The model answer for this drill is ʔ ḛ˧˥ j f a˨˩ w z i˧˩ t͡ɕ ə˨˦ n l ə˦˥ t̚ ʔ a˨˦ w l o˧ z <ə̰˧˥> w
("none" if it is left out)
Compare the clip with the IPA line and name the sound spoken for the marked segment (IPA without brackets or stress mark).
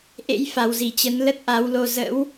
ə̰˧˥